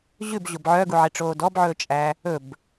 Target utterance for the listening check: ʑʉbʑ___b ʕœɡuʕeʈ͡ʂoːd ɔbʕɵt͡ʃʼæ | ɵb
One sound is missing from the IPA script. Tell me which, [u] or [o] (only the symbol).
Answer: o